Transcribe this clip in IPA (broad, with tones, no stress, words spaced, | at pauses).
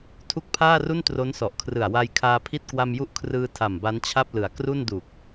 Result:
tʰu˦˥k̚pʰaː˥˩ru˥˩n tro˦˥nsɔ˨˩ʔkʰrɯ˨˩a̯ wa˧jkʰaː˧pʰi˥˩t̚ kwa˧mju˦˥ʔkʰrɯː˧ tʰa˨˩mba˦˥nt͡ɕʰa˥˩p̚ lɯ˩˦a̯ kru˥˩ndu˨˩k̚